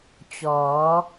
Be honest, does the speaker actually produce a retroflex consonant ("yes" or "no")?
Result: no